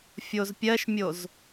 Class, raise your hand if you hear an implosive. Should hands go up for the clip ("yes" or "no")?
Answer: no